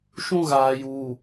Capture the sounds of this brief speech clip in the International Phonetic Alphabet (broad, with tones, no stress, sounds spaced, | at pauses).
ʃ ũ˦ ɣ aː˨ j uː˨